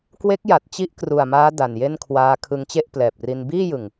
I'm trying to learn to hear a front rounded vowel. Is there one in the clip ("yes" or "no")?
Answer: no